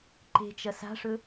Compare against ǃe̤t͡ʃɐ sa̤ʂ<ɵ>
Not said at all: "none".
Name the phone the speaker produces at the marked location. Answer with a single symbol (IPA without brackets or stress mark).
ɵ